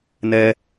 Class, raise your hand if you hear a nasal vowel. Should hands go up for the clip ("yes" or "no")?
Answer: no